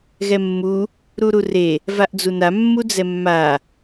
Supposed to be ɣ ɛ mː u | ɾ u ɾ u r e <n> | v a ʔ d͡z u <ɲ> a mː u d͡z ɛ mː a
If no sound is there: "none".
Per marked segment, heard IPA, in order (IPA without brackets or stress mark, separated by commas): none, n